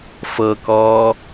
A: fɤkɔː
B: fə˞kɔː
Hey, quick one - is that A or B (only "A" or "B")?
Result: A